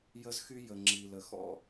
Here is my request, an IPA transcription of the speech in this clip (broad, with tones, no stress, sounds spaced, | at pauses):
j ə˦ z x y˦ j ə˨ ŋ͡ǁ i˨ l ə˨ x ɔ̰˦